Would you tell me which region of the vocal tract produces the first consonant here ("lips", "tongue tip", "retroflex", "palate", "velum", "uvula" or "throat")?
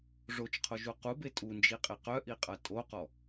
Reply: retroflex